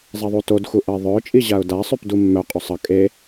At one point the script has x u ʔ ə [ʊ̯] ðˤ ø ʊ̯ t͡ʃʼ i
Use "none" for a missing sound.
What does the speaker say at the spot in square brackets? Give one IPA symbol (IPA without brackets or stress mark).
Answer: ɪ̯